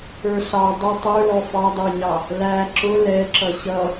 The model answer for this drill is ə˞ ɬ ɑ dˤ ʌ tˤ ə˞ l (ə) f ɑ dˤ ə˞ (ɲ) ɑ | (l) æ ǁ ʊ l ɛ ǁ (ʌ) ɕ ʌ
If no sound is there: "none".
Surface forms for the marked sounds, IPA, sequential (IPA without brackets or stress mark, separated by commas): ɔ, ɲ, l, ʌ